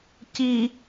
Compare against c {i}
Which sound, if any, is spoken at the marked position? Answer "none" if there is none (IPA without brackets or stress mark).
i